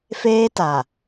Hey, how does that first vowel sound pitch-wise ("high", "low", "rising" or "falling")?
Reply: high